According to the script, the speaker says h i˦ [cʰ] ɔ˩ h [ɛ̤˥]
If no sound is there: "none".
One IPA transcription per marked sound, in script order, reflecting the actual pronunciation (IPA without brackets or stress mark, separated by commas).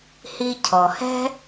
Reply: cʰ, ɛ̤˥